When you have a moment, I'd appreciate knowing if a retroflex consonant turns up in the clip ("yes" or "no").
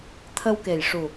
yes